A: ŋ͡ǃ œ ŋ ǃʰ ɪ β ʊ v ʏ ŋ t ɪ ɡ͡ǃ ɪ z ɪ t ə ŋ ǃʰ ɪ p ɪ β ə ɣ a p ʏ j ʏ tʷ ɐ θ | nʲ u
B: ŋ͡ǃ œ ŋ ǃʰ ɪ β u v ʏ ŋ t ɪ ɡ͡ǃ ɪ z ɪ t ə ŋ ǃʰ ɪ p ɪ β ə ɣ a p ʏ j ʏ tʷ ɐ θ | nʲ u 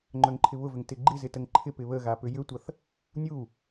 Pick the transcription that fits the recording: A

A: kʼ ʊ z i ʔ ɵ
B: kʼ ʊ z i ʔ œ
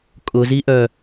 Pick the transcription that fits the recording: B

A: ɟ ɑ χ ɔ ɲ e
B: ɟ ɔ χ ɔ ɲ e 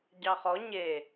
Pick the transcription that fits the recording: A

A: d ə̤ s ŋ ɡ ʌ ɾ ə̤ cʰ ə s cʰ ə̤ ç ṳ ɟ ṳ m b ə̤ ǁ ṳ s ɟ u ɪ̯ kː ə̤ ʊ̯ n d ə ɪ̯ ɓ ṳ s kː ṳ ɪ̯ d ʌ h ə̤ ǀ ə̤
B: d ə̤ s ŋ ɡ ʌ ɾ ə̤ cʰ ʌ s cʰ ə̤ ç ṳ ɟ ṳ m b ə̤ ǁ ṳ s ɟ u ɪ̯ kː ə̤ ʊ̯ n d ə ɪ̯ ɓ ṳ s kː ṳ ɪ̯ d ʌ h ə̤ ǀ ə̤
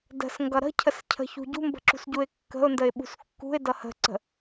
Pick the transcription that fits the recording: A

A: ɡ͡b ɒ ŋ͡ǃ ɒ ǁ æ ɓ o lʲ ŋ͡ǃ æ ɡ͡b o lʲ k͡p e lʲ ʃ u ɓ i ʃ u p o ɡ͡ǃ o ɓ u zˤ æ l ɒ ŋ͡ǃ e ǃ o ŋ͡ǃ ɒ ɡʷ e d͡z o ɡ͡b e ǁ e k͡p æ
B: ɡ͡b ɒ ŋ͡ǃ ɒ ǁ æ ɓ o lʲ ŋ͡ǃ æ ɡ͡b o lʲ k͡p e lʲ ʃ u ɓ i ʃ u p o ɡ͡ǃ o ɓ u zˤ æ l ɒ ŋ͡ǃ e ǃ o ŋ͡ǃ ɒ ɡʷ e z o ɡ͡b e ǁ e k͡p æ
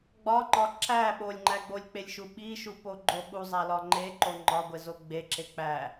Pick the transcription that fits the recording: B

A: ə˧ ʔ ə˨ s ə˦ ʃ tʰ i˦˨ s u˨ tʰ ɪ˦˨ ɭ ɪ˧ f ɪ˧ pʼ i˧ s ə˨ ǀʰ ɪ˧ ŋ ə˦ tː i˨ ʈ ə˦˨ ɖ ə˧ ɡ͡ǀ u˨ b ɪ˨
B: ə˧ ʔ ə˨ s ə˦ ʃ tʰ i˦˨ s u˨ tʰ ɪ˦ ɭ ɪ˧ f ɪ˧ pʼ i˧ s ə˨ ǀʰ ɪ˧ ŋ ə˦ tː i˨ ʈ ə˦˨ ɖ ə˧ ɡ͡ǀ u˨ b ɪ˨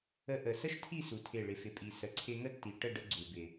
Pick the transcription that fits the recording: A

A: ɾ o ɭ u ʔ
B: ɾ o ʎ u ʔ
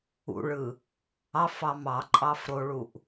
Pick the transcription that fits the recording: A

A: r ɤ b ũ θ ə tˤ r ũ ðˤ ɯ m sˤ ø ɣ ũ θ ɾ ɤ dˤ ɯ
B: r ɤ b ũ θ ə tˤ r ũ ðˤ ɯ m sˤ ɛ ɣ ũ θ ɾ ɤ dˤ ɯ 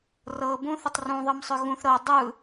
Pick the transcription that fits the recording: A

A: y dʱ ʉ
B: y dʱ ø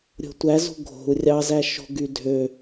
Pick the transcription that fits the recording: B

